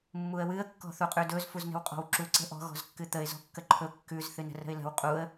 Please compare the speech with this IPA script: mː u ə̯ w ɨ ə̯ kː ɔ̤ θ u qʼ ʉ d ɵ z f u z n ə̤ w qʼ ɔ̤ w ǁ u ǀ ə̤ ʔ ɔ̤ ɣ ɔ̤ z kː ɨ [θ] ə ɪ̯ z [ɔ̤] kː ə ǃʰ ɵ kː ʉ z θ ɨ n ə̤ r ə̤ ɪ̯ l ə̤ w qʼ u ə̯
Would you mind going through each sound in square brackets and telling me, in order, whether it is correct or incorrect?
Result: incorrect: t̪, correct

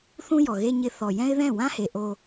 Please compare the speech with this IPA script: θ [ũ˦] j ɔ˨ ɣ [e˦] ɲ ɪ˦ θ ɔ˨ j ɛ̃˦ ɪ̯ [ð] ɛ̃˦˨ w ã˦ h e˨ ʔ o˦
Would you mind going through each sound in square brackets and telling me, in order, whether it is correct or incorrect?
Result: correct, correct, correct

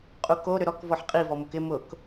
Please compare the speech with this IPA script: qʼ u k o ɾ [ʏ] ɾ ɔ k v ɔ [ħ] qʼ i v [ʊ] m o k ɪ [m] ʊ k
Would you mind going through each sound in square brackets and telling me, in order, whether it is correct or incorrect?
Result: correct, correct, incorrect: ɔ, correct

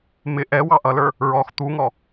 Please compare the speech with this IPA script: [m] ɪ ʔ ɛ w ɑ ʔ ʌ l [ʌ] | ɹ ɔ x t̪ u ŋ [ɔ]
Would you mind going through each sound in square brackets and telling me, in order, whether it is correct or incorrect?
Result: correct, incorrect: ə˞, correct

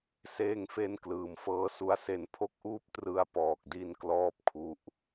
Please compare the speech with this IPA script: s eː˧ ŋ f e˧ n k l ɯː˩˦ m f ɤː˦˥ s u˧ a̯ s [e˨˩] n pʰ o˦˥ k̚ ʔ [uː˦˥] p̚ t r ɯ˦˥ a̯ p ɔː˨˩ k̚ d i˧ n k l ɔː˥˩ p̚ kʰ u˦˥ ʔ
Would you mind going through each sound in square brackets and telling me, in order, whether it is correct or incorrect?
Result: correct, correct

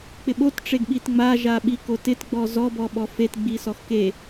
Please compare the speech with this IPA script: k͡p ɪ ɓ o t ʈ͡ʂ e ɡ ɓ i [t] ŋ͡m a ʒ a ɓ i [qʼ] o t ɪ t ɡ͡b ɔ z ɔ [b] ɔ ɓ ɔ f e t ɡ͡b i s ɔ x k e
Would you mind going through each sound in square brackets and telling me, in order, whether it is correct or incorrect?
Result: correct, incorrect: k, correct

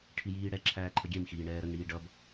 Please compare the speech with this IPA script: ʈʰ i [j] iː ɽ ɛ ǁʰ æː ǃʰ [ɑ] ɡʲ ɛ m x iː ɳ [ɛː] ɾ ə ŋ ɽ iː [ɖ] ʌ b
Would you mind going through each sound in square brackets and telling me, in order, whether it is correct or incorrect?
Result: correct, incorrect: ə, correct, correct

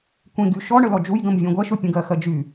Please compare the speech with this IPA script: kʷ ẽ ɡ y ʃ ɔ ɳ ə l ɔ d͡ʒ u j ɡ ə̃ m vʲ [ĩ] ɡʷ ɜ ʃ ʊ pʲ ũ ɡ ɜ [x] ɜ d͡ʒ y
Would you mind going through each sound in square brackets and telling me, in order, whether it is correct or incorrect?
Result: incorrect: ẽ, correct

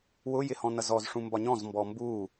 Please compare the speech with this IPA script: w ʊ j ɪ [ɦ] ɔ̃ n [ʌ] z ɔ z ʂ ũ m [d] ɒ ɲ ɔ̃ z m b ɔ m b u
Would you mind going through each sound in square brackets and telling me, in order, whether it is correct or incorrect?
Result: incorrect: h, correct, incorrect: b

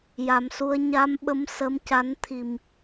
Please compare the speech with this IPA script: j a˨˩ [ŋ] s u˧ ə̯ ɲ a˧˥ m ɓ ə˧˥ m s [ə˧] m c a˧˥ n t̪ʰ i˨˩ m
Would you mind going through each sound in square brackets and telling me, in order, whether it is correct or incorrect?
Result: incorrect: m, incorrect: ə˧˥

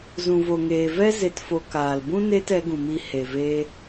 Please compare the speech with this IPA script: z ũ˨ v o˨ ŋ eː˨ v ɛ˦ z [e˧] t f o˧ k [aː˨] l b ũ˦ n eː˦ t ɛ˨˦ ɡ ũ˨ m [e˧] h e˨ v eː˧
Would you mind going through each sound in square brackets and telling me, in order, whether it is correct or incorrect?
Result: correct, correct, incorrect: i˧

